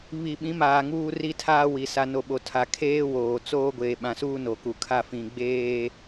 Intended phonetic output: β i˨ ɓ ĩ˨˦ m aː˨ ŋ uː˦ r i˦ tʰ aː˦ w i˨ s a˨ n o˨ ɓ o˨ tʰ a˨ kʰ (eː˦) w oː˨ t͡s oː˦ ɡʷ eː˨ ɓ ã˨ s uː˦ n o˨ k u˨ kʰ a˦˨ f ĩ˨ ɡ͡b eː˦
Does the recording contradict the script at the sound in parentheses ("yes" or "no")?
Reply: no